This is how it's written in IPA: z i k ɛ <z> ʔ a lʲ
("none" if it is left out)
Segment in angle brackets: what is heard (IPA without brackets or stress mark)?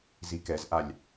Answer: z